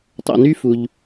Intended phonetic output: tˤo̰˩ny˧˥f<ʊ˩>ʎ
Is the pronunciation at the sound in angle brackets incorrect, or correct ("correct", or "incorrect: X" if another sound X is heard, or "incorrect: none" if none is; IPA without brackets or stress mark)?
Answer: incorrect: u˩